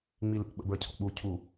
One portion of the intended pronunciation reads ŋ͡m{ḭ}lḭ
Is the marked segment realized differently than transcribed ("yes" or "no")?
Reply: yes